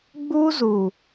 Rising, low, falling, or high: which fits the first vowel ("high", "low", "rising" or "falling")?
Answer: high